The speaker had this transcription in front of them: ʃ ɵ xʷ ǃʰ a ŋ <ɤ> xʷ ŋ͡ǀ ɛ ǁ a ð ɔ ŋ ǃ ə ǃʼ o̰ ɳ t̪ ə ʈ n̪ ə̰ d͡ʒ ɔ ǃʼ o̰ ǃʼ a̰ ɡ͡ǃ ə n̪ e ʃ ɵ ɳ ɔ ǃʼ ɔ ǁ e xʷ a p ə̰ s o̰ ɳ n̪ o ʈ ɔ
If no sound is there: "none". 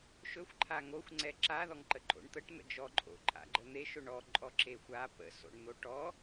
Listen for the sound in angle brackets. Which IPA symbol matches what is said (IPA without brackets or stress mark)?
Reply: o